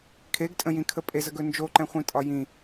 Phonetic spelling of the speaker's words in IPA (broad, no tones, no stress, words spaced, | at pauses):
kʰeɡtʼə̃jĩkʰə pʼezəɡɵ nd͡ʒoǃɛ̃χʷĩtʼɒ jĩ